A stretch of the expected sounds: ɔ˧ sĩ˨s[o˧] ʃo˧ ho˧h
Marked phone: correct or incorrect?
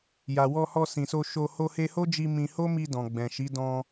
correct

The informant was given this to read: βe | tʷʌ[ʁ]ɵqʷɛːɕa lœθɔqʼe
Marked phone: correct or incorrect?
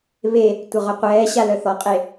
correct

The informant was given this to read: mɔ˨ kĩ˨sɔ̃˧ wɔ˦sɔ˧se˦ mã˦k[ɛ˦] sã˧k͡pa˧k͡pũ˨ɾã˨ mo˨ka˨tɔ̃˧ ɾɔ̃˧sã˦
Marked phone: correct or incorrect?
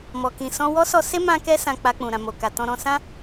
correct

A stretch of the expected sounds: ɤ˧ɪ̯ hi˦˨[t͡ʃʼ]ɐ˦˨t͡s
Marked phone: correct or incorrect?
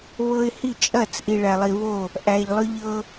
correct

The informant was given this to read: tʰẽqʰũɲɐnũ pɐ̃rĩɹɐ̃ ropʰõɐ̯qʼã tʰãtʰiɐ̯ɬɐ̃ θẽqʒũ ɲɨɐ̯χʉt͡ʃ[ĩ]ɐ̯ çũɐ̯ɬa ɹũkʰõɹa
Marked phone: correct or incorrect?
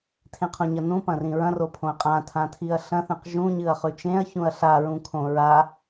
incorrect: ẽ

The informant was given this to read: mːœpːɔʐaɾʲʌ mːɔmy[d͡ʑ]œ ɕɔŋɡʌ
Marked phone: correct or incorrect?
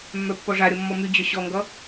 correct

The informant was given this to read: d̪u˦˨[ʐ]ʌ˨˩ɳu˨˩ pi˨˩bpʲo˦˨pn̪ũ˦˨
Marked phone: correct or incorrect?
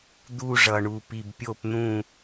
correct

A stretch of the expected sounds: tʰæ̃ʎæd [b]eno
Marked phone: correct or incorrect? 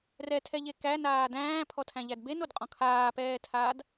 correct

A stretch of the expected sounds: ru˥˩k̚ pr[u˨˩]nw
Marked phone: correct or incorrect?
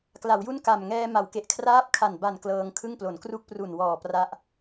correct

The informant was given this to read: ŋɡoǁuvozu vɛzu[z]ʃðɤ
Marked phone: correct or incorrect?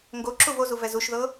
incorrect: none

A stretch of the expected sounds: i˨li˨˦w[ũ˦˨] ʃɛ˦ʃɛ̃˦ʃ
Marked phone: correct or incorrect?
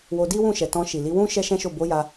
incorrect: ũ˦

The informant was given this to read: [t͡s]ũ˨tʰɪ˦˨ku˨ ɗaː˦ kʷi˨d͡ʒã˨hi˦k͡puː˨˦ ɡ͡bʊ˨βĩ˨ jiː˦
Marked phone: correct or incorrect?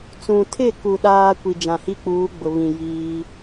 correct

